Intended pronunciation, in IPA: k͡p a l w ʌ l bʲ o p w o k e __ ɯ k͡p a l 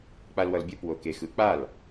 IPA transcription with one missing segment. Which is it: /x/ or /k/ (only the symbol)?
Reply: x